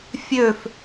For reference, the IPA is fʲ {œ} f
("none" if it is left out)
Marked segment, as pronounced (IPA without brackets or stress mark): ø